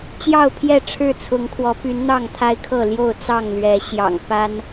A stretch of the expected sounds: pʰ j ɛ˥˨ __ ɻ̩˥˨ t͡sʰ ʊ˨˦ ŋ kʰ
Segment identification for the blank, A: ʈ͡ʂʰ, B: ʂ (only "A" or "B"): A